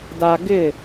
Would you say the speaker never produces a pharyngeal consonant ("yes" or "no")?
yes